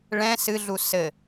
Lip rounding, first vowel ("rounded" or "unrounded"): unrounded